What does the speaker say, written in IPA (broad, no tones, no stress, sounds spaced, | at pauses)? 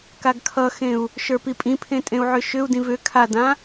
k a ɡ kʰ ʌ x ẽ u̯ | ʃ ə˞ p i pʼ ĩ pʰ ẽ tʼ ẽ u̯ ʕ ʏ ʃ ʏ u̯ d ĩ v ʏ kʰ a d ã